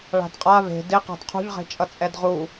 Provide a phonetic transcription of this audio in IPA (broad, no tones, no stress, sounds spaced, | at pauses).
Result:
ɭ a̤ d qʼ a β e̤ d ɪ q a̤ d qʰ ṳ ʎ ʁ e̤ t͡ʃʼ ʌ t͡sʼ ɛ d ʁ u